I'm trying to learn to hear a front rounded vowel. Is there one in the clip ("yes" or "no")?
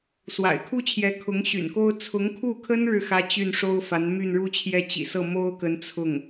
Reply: yes